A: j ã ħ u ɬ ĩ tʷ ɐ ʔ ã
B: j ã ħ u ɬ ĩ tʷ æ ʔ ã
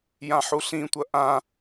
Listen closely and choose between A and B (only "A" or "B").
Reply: A